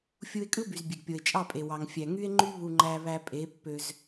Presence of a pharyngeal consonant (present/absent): absent